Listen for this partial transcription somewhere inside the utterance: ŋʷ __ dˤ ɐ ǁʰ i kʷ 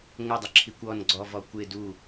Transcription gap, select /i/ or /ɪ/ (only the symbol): ɪ